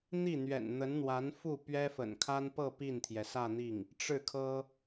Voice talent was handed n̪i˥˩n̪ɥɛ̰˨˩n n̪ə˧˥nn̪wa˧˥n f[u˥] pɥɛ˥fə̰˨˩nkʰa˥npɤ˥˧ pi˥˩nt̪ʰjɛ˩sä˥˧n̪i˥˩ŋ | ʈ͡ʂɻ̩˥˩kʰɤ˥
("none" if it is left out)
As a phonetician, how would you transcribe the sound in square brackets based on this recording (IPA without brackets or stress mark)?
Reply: u˥˩